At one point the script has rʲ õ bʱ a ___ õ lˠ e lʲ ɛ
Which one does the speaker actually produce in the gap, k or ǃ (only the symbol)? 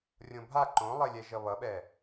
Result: ǃ